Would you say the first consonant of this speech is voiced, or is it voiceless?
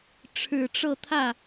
voiceless